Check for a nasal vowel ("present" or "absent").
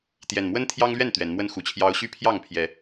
absent